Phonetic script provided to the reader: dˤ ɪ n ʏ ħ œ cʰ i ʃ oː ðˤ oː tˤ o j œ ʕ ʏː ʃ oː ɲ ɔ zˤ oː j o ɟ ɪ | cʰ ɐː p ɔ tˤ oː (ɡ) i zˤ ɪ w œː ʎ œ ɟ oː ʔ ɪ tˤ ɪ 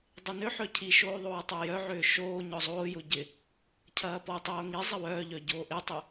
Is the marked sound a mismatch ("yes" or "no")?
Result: yes